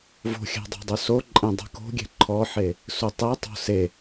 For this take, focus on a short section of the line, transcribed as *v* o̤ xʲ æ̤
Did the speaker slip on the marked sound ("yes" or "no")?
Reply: no